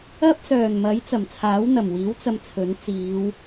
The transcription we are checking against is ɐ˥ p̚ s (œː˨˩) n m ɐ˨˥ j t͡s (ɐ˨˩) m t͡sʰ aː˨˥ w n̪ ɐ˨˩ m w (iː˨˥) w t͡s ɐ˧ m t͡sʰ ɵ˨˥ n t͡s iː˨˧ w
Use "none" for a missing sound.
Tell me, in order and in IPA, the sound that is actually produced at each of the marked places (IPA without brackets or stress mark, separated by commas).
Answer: œː˨˩, ɐ˨˩, iː˨˥